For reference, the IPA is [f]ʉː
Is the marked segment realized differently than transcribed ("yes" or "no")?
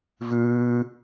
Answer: yes